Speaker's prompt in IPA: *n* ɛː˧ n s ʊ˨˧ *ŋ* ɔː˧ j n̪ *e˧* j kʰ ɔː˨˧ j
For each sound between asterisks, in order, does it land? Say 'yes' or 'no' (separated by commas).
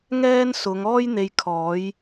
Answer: no, yes, no